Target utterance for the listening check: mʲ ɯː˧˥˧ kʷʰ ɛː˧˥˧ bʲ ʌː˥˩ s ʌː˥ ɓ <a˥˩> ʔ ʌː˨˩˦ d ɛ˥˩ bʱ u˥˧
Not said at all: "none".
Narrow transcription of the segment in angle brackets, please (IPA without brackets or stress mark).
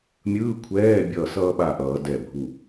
a˥˩